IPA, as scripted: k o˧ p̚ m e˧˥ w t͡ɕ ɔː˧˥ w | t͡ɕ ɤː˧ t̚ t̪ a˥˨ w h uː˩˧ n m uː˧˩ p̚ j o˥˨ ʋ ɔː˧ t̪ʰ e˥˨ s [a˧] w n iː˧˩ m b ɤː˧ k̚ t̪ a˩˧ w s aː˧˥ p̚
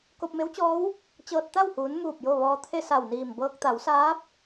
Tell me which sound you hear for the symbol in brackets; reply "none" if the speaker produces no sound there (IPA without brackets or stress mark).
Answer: a˧˩